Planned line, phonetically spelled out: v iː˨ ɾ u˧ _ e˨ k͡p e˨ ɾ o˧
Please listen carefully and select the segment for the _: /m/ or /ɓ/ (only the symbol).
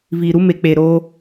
m